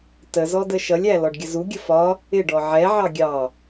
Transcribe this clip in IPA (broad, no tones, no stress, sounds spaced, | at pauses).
t ə z ɔ d ə ʃ ʌ lʲ æ l ɔ ɖ ɡʲ ə z u ɡʲ ə f ɒ | ɪ ɖ ɔ ʕ ɛ ʕ ɑ ɡʲ ɑ